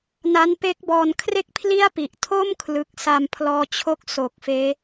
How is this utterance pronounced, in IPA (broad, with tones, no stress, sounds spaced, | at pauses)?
n a˦˥ n p e˦˥ k̚ b ɔː˧ n kʰ r e˥˩ k̚ pʰ l i˥˩ a̯ p i˨˩ ʔ tʰ o˥˩ m kʰ l ɯ˨˩ k̚ s a˧ m pʰ l ɔː˧ t͡ɕʰ o˦˥ k̚ s o˨˩ k̚ f eː˦˥